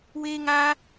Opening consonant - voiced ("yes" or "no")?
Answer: yes